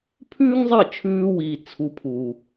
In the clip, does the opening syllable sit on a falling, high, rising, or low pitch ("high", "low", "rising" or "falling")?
high